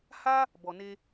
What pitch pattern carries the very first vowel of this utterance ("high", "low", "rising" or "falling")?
high